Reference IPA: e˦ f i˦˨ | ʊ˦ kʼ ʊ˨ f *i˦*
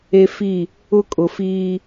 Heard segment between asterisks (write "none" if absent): iː˦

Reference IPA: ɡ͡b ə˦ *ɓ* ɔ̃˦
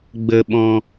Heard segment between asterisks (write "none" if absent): ɓ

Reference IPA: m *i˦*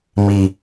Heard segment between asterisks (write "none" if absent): i˦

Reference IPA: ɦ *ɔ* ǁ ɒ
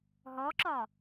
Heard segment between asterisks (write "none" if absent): ɔ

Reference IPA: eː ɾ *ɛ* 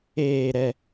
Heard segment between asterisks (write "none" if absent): ɛ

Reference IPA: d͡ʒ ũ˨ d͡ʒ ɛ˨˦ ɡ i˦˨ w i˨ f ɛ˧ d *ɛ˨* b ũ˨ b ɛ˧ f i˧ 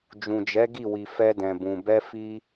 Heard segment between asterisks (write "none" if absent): ɛ̃˨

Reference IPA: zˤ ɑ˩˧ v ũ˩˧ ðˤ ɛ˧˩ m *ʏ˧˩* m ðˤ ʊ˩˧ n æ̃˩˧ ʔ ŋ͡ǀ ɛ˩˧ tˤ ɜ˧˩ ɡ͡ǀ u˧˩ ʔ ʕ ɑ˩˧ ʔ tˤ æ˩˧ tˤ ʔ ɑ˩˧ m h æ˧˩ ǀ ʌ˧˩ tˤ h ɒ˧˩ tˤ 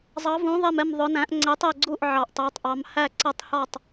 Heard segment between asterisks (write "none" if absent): ɛ˧˩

